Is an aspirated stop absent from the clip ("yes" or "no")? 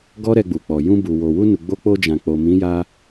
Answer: yes